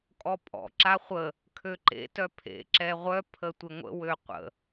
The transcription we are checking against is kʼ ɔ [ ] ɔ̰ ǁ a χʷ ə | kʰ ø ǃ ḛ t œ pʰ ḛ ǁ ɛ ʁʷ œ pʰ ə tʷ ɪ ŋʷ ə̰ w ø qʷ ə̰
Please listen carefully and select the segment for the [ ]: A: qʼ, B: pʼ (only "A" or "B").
B